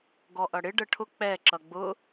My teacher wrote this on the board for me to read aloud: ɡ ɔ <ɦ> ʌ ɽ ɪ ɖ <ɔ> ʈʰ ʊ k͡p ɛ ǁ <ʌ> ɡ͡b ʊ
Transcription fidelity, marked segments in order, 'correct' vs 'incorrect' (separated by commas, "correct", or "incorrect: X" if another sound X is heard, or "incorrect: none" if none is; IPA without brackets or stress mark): incorrect: ʔ, incorrect: ə, correct